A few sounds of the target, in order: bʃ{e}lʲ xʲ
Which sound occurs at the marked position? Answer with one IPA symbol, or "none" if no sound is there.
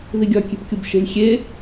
e̤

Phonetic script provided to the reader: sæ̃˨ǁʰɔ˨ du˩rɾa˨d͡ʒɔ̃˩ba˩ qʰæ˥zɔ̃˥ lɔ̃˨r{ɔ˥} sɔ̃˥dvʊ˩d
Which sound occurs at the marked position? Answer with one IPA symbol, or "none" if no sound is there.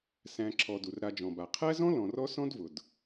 ɔ˦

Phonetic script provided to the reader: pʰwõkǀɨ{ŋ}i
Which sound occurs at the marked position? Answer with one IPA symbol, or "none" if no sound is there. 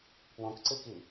k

